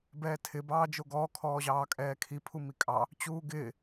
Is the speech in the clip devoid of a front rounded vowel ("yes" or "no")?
yes